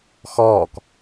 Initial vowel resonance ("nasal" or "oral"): oral